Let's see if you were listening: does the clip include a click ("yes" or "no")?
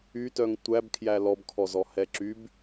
yes